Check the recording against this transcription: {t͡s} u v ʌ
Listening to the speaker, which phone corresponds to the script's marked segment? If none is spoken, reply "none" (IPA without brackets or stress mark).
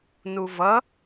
n